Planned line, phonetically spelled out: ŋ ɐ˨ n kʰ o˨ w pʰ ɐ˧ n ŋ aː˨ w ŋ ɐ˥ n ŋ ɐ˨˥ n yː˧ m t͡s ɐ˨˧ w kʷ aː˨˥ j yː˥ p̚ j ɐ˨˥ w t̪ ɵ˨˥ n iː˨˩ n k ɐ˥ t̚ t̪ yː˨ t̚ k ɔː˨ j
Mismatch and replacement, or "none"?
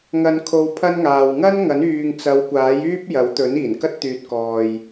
m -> ŋ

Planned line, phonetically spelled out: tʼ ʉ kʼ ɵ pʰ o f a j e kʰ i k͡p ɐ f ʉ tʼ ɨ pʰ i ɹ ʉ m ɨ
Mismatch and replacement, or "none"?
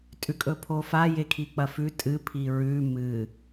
none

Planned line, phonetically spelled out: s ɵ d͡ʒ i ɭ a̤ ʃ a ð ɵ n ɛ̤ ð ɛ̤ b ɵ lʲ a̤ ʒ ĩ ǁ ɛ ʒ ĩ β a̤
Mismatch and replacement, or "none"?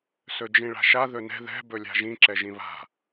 i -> ĩ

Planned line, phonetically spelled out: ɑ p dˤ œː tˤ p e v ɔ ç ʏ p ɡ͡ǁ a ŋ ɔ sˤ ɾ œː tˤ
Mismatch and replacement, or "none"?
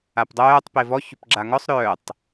ɑ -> a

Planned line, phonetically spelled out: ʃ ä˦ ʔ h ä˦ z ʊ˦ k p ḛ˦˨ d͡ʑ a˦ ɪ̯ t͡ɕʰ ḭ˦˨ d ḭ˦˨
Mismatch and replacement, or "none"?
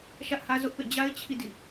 k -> ʔ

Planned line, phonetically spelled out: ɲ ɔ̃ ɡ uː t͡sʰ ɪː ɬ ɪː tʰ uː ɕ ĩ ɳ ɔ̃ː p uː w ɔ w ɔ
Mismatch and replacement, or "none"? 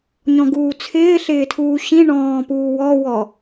none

